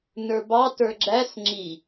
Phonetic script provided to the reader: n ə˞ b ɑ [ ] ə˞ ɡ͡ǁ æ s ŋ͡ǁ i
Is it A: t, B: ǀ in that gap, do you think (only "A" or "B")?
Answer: A